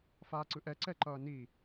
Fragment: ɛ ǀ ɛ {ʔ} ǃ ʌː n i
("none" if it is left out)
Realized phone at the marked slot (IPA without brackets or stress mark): none